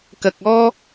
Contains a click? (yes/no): no